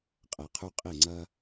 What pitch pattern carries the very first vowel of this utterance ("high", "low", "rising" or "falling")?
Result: low